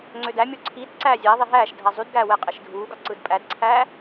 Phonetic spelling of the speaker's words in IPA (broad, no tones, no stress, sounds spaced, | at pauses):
ŋ͡ǀ ø d æ mʲ o ǀʰ i d ǀ æː zʲ æ ðˤ i ɦ æː ʃ dʱ æ zˤ y d ɡ æː w e qʼ e ʃ dʱ uː ɡ ɑ ǀ ɯ d pʼ æ d ǀʰ æː